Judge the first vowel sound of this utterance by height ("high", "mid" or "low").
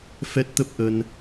mid